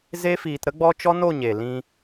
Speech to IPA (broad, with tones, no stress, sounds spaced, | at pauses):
z e˦ f iː˧ t ɾ ə˦ ɡ͡b ɔ˦ t͡ʃ ɔ˦ n o˦˨ ɲ e˨ l ĩ˧